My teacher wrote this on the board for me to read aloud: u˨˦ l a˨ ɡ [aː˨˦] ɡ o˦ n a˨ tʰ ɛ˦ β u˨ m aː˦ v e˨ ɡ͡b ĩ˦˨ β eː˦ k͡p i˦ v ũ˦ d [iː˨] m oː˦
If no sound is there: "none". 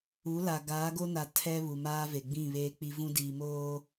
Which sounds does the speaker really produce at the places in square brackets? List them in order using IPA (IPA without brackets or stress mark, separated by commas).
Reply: aː˨˦, iː˨